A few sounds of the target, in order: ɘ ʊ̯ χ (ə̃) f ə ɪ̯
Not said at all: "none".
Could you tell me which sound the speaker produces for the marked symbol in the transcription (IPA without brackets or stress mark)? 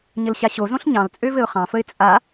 ɑ̃